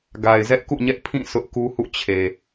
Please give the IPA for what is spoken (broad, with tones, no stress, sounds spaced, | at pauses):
ɡ a˨ ɪ̯ z ɛ˦ ʔ k ṵ˦˨ ɲ ɛ˦ ʔ pʰ ĩ˦˨ sʰ ʊ˦ ʔ k u˦ h ṵ˦˨ t͡ɕʰ e˨